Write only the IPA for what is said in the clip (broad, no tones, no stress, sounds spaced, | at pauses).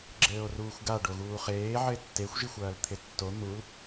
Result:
ɡ͡ǁ ɘː o̯ r uː xʷ ɡ a ɖ o ɣ uː χ eː ʕ ɘ e̯ tː e xʷ ʒ i xʷ ɐː l t̪ʰ e tː o n̪ u l